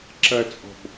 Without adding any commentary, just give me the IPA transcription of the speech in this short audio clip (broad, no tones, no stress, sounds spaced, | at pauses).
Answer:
ǁ ɐ t͡sʼ ɔ̤ b